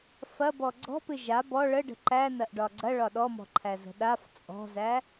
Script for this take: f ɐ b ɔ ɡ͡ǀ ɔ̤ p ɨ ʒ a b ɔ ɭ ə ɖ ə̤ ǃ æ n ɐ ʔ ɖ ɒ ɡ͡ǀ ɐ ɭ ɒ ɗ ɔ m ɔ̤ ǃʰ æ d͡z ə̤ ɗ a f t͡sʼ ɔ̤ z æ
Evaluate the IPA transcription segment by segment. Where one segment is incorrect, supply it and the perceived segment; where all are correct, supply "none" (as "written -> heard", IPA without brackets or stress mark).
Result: d͡z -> z